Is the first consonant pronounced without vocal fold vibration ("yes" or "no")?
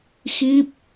yes